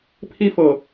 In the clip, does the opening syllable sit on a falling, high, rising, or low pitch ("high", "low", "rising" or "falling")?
high